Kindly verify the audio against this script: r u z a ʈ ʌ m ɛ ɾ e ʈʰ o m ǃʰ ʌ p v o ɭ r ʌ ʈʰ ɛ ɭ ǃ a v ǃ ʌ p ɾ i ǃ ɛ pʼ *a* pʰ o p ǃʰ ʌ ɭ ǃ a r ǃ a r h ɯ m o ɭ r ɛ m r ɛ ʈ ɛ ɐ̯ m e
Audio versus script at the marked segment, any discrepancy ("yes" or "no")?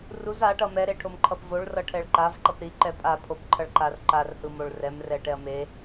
no